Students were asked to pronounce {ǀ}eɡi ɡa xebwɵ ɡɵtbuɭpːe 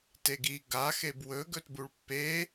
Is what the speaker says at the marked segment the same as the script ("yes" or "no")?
no